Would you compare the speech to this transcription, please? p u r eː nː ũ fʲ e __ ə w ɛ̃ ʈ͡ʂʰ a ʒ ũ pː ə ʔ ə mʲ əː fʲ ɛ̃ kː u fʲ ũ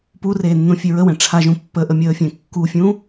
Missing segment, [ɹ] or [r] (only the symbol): ɹ